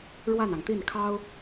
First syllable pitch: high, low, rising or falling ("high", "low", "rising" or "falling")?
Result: falling